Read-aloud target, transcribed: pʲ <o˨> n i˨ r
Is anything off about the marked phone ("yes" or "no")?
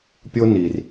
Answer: yes